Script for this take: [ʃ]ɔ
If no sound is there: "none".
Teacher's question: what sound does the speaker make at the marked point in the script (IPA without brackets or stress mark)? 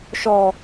ʃ